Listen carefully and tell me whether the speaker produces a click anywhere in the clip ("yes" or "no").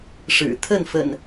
no